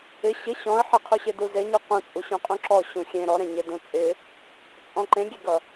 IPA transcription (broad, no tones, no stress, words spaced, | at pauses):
ɪ ɕɪ ɕɔ̃ə̯ ħɪqʰuɕe duzeɲu qũt͡sʼu ɕũqʼũǁɔ ɕũxʲẽ ɾɔɾẽɲe dũt͡sʼɪ | t͡sʼɔ̃ǃẽɡʲeɡʌ